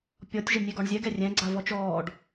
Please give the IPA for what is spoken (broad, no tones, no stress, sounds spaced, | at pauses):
pʲ ɔ tʲ ʒ ɪ nʲ e ɡ ɔ ɳ zʲ ɛ ɡ ɛ rʲ ɛ̃ ɡ͡ǀ a v ɔ t͡ʃ ɔː ɖ